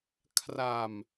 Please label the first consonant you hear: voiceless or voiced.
voiceless